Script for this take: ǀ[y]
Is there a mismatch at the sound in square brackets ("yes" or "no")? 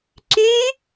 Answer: no